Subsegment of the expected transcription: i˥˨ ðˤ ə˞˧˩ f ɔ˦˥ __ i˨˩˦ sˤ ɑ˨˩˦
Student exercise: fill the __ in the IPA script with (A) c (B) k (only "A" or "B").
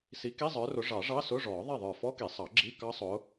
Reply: B